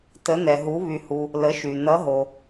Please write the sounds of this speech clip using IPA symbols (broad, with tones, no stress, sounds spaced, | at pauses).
t ə˩˧ n ɛ˩ ɦ u˩˧ β y˩ h u˩ | l ə˩˧ ʃ y˩ n ʌ˩˧ ɦ o˩